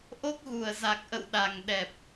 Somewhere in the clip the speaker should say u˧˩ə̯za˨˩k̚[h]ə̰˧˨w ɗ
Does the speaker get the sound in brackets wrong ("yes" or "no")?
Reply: yes